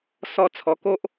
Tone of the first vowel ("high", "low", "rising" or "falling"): high